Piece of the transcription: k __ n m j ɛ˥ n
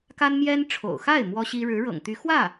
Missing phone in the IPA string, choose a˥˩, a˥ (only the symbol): a˥